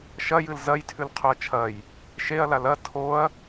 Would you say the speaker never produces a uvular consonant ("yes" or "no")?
no